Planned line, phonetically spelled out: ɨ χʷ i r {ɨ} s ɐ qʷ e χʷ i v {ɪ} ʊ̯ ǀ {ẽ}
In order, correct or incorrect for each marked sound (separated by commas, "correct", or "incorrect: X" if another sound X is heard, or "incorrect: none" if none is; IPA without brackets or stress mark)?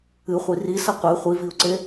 incorrect: i, incorrect: i, incorrect: e